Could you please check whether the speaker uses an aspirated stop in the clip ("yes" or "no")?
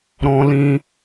no